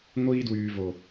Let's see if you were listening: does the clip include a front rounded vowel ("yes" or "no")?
yes